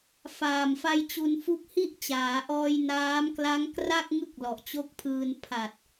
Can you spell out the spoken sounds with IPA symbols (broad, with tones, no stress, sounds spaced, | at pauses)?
f aː˨˩ m f a˧ j t͡ɕ u˧ n f u˦˥ k̚ h i˥˩ ʔ t͡ɕ aː˩˦ ʔ ɔː˧ j n aː˦˥ m k l a˦˥ ŋ k r a˥˩ k̚ ŋ ɯ˥˩ k̚ l ɔ˨˩ ʔ t͡ɕ o˦˥ k̚ pʰ ɯː˧ n pʰ a˨˩ t̚